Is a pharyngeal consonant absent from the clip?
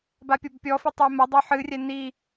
no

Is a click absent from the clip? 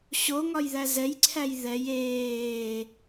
no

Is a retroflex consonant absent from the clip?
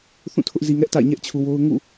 yes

